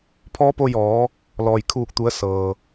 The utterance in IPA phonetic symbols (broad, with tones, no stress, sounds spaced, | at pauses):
pʰ ɔː˧˥ p o˧ j ɔː˩˧ | l ɔː˩ j kʰ uː˧˩ k̚ t̪ u˩˧ ə̯ s ɤː˩